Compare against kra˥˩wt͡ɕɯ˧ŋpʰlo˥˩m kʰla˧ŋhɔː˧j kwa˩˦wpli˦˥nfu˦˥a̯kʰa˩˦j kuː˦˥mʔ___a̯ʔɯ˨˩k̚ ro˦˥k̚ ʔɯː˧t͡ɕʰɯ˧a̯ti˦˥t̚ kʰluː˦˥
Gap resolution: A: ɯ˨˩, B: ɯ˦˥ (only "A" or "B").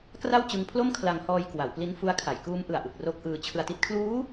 A